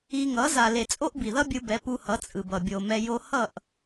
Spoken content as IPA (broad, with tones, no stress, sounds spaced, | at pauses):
i˧ ŋ ʌ˨˦ z a˨ l e˨ t͡sʼ o˦ ʔ b i˨ ð ʌ˦ bʲ ɯ˧ b ɛ˨˦ p u˧ h ʌ˨˦ t͡sʼ ɯ˨ b ʌ˨ bʲ o˨ m ɛ˧ j o˦ h ʌ˦˨ ʔ